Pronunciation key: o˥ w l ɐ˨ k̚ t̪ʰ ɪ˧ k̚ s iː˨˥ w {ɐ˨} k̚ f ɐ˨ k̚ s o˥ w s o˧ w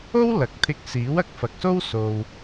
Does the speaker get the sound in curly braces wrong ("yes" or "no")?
no